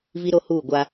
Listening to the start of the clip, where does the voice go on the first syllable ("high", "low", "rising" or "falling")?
high